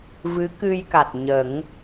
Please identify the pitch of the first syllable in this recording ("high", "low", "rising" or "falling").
rising